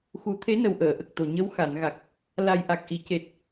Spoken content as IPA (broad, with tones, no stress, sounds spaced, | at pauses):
x u˨˩˦ t̪ʰ e˧˥ n ə˨˩ w ʔ əː˨˩˨ ʔ ə˨˩ k̚ t̪ o˨˩ ɲ ə˧˥ w x a˨˩˨ n ɣ a˨˩ k̚ | l a˨˩ j ʔ a˨˩ k̚ ʔ i˨˩˨ c e˨˩ t̚